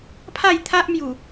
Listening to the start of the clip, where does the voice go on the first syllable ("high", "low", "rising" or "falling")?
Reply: falling